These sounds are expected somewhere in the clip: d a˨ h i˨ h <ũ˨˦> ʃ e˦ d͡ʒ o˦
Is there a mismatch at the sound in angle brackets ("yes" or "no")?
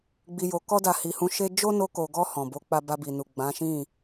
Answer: no